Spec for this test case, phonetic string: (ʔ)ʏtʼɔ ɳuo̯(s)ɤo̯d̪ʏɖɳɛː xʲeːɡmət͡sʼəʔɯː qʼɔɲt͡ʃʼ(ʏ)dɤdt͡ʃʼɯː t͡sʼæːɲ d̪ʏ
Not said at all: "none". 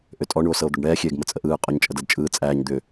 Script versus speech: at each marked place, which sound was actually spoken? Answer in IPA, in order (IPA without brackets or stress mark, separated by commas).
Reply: ʔ, s, ə